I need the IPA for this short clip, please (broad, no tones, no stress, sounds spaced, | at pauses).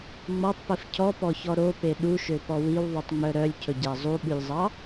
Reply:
ŋ͡m ɔ tˤ p i f cʰ ɔ p ɔ ç ɔ ɾ o p e ɗ u ʃ ø p ɔ w i w ðˤ ʉ tˤ ŋ͡m œ ɾ œ lʲ cʰ ɵ ɟ æ zˤ u ɓ ʉ lʲ zˤ ɑ